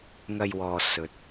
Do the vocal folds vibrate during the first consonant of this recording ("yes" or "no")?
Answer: yes